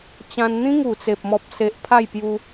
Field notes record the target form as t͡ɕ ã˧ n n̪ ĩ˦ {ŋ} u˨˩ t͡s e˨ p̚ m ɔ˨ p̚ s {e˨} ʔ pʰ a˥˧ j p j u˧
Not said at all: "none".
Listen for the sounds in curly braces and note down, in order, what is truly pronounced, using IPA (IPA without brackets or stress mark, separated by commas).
ŋ, e˨